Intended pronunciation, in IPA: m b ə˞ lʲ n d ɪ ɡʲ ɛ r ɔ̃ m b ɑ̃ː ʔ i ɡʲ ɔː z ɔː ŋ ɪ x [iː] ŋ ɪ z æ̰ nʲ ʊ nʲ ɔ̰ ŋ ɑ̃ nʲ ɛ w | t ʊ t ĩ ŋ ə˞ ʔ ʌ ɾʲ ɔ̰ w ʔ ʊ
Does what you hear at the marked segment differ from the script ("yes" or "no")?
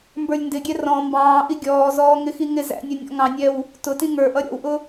yes